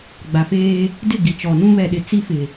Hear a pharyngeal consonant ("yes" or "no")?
no